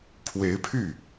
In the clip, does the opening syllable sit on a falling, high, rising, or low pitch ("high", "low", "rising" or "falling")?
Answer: rising